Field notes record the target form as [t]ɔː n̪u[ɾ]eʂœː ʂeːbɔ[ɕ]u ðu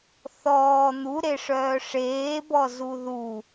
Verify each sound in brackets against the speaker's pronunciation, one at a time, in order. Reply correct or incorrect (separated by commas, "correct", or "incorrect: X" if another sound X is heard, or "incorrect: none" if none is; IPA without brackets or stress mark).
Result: incorrect: θ, correct, incorrect: z